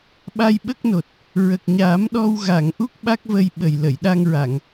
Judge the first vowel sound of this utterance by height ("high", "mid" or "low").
low